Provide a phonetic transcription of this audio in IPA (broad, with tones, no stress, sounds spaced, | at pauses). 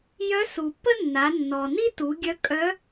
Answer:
j œ˧˥ s u˩ pː ə˥ nː a˩˧ nː ɔ˩ n i˥ t u˩˧ ɡʲ œ˧˥ kʼ œ˧˥